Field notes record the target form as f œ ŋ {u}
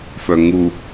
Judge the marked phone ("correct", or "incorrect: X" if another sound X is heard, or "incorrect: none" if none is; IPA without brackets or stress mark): correct